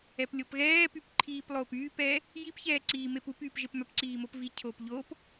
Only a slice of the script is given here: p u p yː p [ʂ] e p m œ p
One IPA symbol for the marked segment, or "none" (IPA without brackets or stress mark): ʒ